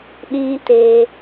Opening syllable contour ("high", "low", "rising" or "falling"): high